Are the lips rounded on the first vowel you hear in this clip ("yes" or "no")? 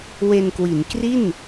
no